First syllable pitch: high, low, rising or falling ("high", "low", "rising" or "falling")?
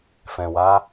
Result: low